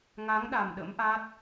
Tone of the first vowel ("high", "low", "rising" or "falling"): rising